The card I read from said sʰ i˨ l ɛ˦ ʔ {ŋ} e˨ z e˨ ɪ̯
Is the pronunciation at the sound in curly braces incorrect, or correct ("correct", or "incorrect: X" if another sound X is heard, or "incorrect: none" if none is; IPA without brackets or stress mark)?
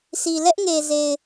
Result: correct